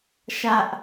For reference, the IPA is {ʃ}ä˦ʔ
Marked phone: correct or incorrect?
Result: correct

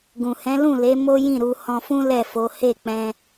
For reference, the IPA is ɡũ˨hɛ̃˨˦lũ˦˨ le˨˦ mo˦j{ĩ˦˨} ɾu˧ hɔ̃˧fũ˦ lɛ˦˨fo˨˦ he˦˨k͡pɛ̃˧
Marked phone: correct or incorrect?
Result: correct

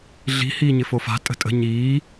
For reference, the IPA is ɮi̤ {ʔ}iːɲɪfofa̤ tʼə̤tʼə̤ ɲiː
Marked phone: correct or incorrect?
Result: incorrect: h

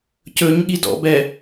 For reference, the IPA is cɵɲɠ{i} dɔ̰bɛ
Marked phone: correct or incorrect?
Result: correct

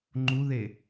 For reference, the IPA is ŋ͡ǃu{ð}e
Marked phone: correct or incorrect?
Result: correct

